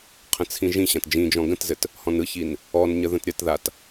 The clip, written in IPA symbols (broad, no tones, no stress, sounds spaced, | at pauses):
qʰ ə̃ t͡sʰ ĩ ʒ ĩ ɕ ã t d͡ʒ ĩ d͡ʒ ɔ̃ ɡ ə̃ t z ɘ t | h ɔ̃ n ɯ ç i n | ɔ n ɲ ə ð ə̃ t ɾʲ ʌ t ð a t